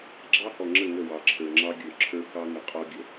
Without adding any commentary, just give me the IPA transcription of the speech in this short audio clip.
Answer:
ɡ͡ǁɑ˦hɔ˨ŋ͡ǁə˦˨ ŋə˦˨wɑ˨ǁʰə˞˨ ŋ͡ǁɑ˦ɡʲə˞˨ ǁʰə˞˦kɑ˦ŋə˨ qʼɔ˦ɡʲə˨

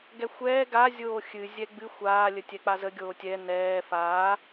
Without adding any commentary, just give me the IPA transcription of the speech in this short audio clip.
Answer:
ɡɛxʷɛː ɡa zʲoːxʲɨ zʲɛɡ͡bɨ xʷaː lʲətʲɛk͡pazə ɡʲoːtʲɛ nɛː faː

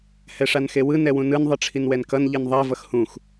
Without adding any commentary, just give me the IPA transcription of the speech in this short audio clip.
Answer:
hɛʂanxewɯ nɛwũnɯn ðˤɯʈ͡ʂʰinwɛnkʌn ʎinðˤɛ vʌxhũx

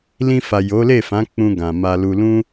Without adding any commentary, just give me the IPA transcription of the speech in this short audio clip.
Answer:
lĩ˧fa˨ jo˨˦le˦˨fã˨˦ k͡pũ˧ɡã˨ ma˧lu˧ lũ˦

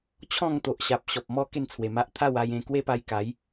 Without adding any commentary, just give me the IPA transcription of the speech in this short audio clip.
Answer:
t͡ɕʰɔ̃˥˧ŋt̪o˨ʔɕa˨p̚ ɕɔ˨p̚mɔ˦ ke˥˧nt͡sʰwe˨˩ma˦ʔ t̪ʰa˥˧wa˧jẽ˧ kwe˦pa˧j ka˨˦j

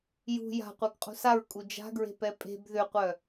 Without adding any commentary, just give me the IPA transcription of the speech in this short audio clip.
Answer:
jṳ ja̤qʷœɡ qʼṳsaɹkʼu d͡ʒa̤ɡɹe̤pɛ pʼe̤b ðʏqʷœ

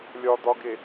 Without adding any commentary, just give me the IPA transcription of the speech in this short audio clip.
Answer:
lʲɒd̪ɒɡe

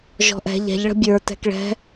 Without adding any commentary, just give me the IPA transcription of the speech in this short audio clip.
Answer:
ʒɔ̤ʔɛ̤ ʎɛ̤ʎɭə̤ bʲə˞ tɛ̤kɭɛ̤

